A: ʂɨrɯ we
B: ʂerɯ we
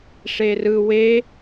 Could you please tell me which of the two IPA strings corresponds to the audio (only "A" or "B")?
B